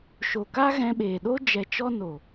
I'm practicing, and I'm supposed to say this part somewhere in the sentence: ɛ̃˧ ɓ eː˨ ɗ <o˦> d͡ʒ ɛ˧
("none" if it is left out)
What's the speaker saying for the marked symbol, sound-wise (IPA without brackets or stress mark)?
o˦